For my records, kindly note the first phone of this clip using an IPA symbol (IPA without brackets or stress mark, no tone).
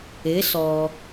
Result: ɪ